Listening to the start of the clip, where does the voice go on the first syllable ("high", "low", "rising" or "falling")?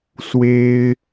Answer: high